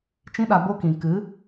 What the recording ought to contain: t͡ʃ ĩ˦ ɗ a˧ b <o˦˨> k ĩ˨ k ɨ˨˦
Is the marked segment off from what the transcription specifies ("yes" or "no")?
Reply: yes